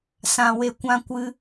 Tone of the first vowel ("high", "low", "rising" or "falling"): low